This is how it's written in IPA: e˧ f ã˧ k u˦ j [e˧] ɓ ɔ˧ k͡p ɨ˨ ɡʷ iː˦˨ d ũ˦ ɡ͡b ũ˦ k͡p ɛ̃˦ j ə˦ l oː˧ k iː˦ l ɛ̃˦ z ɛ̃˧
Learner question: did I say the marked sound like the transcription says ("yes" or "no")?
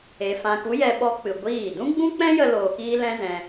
no